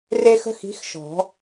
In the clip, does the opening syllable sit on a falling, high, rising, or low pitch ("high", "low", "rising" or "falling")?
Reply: high